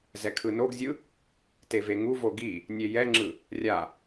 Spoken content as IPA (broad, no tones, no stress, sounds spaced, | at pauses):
z ɛ kʰ ɯ n o ɡ zʲ ɯ | t e v e ŋ u v o ɡ i | nʲ e j ɛ ŋ͡ǁ ɯ | rʲ a